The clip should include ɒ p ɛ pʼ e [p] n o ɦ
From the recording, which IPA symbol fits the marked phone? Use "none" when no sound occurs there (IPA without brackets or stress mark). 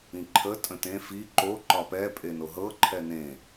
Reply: none